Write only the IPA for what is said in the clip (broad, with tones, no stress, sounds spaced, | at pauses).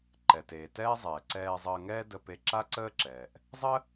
ǃ ɛ˩ t eː˩ t ɛː˥ zˤ ɛː˩ ǀ ɛː˧ zˤ əː˧ ŋ ɛː˥ d ə˧ p e˧ ǁ a˥ ǀ əː˥ ǁ ɛː˩ ʔ | zˤ ə˥